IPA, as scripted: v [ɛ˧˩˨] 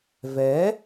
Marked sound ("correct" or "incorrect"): incorrect